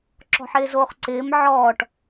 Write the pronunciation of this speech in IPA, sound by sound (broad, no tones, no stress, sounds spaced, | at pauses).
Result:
ǁ ɔ̤ ħ ɪː z oː χ ǀ ɪː m ʕ ɔː ʈ